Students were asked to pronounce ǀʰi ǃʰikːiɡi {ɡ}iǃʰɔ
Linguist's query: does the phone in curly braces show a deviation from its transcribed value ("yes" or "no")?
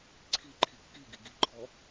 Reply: no